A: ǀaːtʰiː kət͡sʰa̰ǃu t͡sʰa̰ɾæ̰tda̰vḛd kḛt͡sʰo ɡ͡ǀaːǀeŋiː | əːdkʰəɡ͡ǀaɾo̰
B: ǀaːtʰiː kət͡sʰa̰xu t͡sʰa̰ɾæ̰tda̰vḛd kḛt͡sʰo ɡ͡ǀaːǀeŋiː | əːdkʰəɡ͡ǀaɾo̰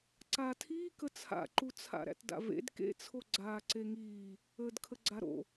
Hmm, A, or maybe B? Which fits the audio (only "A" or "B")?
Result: A